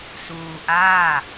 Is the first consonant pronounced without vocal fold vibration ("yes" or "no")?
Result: yes